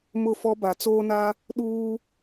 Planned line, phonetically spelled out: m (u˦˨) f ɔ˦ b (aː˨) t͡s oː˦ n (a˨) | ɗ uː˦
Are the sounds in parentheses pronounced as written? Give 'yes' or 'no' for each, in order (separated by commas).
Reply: no, no, no